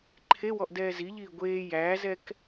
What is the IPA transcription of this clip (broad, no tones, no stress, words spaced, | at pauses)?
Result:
ǃʰewɔʔ dɛːziʎiː ɡʷeː jæːzɛk